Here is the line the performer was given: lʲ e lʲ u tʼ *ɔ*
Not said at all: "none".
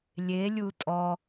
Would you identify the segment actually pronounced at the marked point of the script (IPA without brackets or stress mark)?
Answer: ɔ